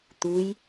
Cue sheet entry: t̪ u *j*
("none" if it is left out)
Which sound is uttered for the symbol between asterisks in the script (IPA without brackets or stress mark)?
j